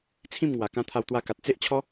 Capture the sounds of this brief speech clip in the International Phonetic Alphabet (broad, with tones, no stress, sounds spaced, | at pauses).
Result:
t͡sʰ ĩ˥˧ m ŋ w a˨˩ k ã˧ t̪ʰ a˧ w t̪ w a˧ k a˨ t̚ t͡s e˦ ʔ t͡ɕʰ ɔ˦